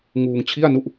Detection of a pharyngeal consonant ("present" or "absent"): absent